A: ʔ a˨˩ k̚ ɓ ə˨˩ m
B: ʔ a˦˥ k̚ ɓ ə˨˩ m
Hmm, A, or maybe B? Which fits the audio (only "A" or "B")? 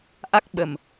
B